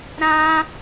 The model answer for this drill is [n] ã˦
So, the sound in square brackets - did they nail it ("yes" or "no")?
no